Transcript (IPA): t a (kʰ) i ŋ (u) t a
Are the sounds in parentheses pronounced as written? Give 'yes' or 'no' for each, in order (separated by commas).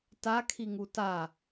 yes, yes